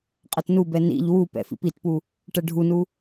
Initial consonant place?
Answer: uvular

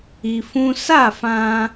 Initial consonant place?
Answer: labial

